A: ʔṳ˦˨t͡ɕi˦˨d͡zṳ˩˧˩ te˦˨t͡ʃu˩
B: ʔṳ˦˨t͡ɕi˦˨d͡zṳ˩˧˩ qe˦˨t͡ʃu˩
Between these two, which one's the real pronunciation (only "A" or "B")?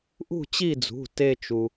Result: A